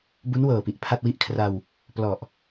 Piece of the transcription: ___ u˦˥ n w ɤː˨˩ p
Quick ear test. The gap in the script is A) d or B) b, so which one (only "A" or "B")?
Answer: B